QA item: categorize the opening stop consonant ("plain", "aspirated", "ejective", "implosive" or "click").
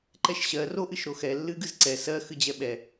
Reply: click